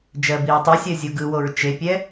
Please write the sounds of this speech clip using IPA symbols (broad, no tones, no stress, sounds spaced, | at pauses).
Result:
d͡ʒ ɜ b i ɹ tˤ i sʲ ɜ zʲ o ɡ ɯ w o ɹ t͡ʃ e pʲ ɛ